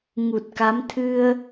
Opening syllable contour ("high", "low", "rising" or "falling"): low